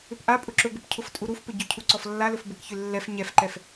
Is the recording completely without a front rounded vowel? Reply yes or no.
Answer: no